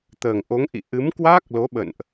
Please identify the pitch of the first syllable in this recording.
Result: low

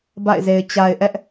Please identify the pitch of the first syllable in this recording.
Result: falling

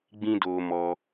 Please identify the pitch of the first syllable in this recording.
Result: high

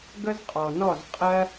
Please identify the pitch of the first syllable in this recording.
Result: high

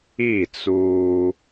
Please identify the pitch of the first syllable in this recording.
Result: falling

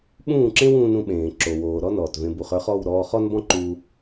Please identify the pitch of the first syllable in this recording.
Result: falling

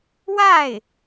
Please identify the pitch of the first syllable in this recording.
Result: falling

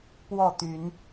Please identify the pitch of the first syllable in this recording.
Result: falling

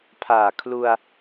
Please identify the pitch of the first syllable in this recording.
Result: low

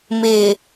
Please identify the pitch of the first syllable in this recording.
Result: low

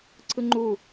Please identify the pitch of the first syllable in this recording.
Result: high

